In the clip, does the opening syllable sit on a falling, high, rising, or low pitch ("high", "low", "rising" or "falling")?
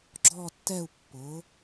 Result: falling